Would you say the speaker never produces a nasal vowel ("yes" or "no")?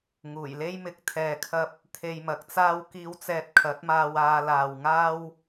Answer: yes